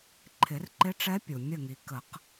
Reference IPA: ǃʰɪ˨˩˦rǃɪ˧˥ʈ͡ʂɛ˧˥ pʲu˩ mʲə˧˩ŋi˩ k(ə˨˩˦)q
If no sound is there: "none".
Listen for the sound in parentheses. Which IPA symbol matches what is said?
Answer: ə˨˩˦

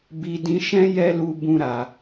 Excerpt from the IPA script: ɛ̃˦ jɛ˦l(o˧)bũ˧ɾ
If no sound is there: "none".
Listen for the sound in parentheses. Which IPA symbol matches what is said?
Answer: u˧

